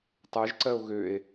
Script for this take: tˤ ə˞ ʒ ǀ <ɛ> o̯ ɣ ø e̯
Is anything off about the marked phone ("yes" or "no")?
yes